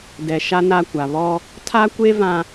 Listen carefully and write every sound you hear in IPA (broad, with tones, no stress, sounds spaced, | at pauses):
d ɛ˨ ʃ a˦ n a˦˨ kʷ a˨ β ɔ˦ | tʰ a˦ kʷ e˦ v ã˦